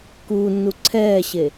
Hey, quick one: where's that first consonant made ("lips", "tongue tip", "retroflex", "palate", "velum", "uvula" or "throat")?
velum